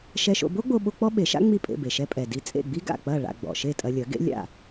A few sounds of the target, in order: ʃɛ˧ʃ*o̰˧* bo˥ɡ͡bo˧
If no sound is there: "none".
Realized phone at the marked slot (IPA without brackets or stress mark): o̰˧